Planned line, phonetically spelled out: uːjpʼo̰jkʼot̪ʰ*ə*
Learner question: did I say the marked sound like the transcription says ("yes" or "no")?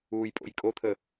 yes